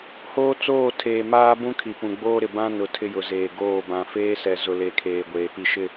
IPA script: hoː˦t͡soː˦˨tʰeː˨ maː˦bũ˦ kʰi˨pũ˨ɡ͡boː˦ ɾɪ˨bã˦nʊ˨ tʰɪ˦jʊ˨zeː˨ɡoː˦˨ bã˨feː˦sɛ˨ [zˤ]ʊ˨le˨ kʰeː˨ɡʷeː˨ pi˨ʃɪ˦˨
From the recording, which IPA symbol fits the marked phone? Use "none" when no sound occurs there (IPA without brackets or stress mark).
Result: z